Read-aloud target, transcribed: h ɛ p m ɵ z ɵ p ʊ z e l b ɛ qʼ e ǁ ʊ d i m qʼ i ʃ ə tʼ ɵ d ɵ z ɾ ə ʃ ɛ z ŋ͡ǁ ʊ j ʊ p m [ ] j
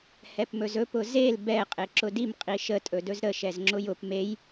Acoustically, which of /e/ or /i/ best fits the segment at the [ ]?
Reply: e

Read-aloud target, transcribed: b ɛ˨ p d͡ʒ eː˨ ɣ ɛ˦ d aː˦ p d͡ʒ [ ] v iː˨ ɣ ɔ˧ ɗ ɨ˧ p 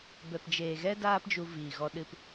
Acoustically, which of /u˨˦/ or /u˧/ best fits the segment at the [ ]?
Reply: u˧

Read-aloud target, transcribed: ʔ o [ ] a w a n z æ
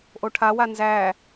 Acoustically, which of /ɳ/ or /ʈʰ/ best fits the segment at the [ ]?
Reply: ʈʰ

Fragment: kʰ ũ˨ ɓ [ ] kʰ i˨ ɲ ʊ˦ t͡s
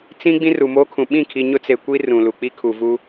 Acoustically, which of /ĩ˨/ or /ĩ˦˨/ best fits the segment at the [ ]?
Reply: ĩ˦˨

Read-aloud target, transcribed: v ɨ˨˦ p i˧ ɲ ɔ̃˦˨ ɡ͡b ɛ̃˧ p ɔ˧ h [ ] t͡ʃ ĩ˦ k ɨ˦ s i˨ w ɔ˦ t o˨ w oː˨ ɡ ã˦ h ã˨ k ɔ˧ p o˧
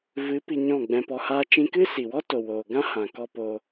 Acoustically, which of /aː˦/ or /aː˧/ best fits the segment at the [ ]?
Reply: aː˦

